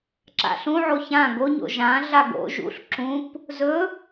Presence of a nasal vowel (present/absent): present